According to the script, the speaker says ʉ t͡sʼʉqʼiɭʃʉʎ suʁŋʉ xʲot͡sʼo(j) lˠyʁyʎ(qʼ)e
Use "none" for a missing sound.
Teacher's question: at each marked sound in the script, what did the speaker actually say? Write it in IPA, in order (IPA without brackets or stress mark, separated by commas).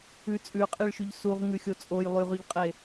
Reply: j, qʼ